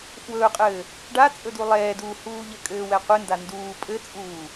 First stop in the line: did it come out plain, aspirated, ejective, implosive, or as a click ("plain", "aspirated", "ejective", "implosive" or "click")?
ejective